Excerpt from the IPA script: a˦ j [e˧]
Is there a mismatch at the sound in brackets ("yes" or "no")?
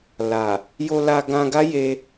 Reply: no